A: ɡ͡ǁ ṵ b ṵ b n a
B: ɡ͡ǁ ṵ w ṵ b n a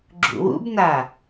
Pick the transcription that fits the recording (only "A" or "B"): B